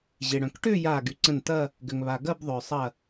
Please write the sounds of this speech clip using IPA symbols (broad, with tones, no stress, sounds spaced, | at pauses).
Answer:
ʑ e˩ ɽ œ̃˩ k ʈ ʏː˥˧ j aː˧˩ ɡ y˩ ǀ ə̃˧˩ n t ɐ˥˧ | ɡ ʏ˩ ŋ β a˩ ɡ ɐ˥˧ b ðˤ ʏː˩ sˤ ɐ˧˩